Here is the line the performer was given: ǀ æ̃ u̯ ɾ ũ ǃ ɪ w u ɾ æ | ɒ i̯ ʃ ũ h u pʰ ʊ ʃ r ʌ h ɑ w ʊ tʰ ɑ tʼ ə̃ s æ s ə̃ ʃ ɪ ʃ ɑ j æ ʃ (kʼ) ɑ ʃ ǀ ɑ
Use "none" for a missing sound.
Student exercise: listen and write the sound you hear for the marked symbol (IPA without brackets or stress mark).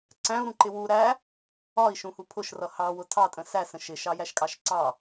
kʼ